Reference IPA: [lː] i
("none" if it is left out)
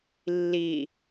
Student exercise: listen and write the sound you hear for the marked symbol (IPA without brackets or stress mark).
lː